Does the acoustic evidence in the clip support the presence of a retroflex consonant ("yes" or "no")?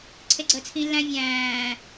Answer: no